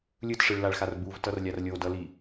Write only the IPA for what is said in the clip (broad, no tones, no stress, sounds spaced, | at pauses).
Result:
lʲ ɯ t ʂ ɯ ɭ l a ɭ x a r b u v t ʌ r lʲ a r lʲ o d ʌ l i